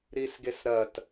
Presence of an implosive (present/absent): absent